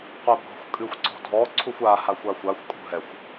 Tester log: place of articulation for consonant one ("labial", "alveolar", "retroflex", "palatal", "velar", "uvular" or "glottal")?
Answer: uvular